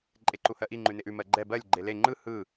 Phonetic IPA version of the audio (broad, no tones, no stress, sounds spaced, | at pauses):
ǃʼ e ǃ u h ɜ ʔ i ŋ͡ǃ ʉ n e ʔ ʉ m ɜ ɡ͡ǃ ɛ b ɜ lʲ ɡ͡ǃ e l e ŋ͡ǃ ɯ h ɯ